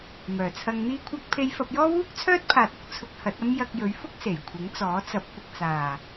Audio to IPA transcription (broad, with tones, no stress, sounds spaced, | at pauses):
m œː˨˩ t͡sʰ ɐ˧ ŋ n̪ iː˥ kʷʰ ɐ˥ k̚ pʰ e˧ j f ɐ˧ p̚ j ɔː˥ w uː˥ k̚ t͡sʰ œː˥ t̚ pʰ aː˨ t̚ ʊ˧ k̚ t͡sʰ ʊ˧ k̚ h ɐ˨˥ t̚ ɐ˥ m j ɐ˧ k̚ j ɵ˨˥ ɥ f ʊ˥ k̚ s e˨˩ j kʷʰ ɪ˨˥ ŋ t͡s ɔː˨˥ t͡s ɐ˨˥ p̚ kʷ ɪ˨ k̚ t͡s aː˨˩